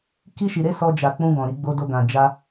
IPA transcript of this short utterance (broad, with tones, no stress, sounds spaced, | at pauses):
k i˧ ʃ i˨ ɾ e˧ s ɔ˧ d͡ʒ a˨ k͡p ũ˧ ɡ ɔ̃˨ ɾ i˧ ɡ͡b o˧ d o˧ ɡ ã˨ d͡ʒ a˧